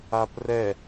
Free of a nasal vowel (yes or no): yes